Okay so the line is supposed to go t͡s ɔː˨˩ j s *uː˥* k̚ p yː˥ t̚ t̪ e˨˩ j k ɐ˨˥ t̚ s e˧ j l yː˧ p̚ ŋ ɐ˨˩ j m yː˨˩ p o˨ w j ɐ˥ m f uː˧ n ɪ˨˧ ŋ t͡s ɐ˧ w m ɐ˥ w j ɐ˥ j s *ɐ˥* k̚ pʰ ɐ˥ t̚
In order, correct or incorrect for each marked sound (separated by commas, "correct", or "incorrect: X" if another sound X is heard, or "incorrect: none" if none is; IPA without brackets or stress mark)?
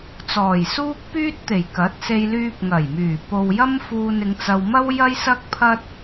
correct, correct